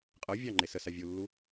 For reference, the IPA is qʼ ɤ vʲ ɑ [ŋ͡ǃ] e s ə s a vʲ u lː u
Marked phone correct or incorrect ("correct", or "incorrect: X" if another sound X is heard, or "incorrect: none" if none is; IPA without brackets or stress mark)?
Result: correct